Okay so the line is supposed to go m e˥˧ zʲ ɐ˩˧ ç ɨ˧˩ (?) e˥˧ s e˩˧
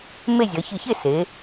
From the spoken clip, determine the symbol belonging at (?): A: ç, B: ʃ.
A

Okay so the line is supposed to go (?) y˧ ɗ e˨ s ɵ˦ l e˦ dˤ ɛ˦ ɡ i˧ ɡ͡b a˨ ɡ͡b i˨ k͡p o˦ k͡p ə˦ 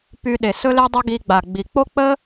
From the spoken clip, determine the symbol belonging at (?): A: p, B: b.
A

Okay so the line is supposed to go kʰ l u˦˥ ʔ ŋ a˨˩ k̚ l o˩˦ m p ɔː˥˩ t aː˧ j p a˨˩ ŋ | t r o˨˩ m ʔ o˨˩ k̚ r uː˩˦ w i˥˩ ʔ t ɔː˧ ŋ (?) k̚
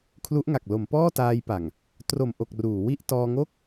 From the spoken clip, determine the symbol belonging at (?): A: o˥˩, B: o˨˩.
A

